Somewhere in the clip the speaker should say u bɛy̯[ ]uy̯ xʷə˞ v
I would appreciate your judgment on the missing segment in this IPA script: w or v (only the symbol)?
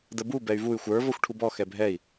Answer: v